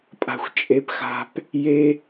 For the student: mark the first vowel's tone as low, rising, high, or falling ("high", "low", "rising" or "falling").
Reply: high